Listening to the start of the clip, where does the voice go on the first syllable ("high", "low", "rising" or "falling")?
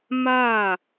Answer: falling